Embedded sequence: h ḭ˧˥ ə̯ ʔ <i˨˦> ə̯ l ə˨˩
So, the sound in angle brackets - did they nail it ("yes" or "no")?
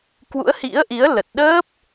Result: yes